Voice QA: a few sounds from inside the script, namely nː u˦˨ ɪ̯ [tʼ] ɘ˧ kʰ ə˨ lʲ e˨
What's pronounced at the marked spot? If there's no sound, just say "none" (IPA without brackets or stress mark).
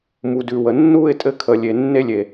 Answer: tʼ